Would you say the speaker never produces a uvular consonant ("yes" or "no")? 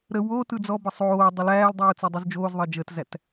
yes